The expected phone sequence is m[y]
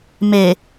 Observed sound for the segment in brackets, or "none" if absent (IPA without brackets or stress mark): e